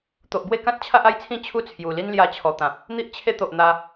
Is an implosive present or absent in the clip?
absent